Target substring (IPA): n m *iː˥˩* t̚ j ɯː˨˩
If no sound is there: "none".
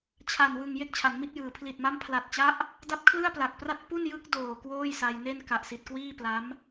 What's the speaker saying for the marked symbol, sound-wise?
i˥˩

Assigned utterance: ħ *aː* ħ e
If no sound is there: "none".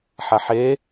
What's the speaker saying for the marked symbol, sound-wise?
a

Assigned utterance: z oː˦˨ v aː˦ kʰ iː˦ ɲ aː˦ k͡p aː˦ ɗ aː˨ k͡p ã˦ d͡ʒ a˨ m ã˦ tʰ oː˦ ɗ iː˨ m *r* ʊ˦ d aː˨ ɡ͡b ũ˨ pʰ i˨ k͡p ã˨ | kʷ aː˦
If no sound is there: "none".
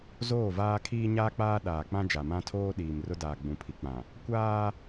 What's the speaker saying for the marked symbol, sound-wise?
r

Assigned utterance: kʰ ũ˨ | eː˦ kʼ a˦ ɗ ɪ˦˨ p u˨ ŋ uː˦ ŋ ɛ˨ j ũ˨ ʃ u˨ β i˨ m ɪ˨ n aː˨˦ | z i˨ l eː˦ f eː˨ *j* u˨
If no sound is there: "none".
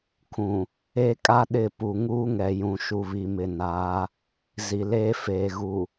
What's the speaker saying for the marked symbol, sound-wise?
ɣ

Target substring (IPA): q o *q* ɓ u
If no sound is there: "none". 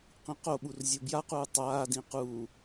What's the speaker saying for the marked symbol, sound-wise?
none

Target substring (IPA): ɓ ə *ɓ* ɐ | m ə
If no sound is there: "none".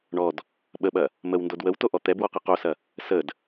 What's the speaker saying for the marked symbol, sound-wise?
ɓ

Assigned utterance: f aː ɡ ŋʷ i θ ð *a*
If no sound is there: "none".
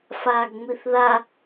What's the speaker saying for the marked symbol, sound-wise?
a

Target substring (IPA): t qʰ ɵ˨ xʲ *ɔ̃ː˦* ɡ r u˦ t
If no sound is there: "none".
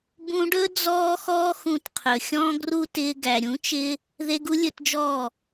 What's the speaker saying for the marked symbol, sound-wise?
ɔ̃ː˦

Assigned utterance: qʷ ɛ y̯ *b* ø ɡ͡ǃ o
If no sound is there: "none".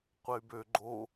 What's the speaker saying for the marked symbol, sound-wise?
b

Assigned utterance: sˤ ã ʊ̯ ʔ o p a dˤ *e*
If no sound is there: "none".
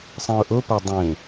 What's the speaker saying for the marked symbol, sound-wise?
ẽ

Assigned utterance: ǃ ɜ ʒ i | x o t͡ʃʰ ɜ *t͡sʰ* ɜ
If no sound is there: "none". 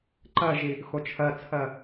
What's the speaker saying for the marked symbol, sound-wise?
t͡sʰ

